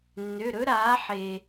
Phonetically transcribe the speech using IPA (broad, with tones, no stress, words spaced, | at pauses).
nːø˩˧˩ɾɵ˦˥ ɾaː˩˧ħe˩